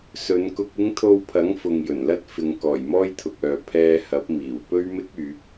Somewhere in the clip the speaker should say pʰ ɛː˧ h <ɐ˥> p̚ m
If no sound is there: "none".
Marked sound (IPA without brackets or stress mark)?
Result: ɐ˨˥